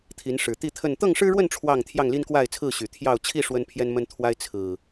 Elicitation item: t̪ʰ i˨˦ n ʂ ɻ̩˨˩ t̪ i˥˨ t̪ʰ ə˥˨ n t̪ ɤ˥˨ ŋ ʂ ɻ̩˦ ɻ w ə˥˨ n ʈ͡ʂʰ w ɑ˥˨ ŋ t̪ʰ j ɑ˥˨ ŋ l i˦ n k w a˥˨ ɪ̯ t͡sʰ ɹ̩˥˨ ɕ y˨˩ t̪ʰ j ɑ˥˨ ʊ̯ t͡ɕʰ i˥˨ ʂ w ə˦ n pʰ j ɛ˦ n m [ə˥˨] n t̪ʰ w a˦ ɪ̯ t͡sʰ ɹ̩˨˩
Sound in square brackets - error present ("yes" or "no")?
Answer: yes